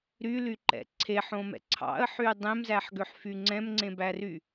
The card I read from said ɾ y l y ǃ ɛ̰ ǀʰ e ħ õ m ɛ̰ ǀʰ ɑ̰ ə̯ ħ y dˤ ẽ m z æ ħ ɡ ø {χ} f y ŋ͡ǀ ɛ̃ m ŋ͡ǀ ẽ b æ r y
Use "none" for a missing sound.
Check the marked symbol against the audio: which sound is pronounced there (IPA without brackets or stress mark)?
ħ